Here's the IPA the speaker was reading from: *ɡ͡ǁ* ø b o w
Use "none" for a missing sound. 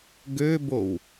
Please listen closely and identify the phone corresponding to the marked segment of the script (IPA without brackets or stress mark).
ɡ